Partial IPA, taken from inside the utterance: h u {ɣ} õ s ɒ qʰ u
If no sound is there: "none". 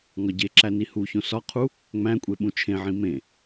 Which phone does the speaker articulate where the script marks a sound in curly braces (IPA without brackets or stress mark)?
ç